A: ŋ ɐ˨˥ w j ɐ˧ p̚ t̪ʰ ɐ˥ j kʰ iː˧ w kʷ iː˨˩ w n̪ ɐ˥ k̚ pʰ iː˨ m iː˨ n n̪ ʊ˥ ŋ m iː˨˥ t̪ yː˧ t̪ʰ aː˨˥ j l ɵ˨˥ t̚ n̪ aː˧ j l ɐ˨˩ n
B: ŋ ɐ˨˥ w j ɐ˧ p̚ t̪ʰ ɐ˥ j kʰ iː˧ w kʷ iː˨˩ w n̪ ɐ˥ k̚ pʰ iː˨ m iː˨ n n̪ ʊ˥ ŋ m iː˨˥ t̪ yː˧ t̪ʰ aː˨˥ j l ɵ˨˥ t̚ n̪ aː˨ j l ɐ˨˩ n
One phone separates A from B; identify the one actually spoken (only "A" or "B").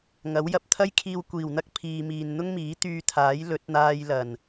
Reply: A